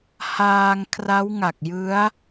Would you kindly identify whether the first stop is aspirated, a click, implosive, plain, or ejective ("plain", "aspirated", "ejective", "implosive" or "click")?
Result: aspirated